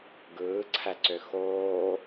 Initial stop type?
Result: plain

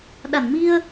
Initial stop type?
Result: implosive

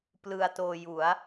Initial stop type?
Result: plain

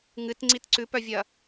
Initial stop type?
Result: plain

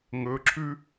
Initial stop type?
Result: click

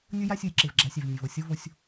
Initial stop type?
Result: click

